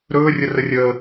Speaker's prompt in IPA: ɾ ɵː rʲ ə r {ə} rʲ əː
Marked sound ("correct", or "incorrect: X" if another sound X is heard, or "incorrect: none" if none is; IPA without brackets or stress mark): correct